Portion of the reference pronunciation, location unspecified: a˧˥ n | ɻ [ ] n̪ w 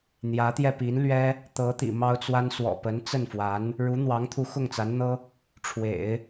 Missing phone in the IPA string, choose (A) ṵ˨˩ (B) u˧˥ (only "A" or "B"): B